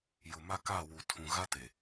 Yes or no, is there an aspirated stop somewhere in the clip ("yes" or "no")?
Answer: yes